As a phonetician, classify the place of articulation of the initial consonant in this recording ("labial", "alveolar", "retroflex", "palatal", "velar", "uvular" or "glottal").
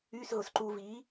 alveolar